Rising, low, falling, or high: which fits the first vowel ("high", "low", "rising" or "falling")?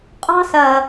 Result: high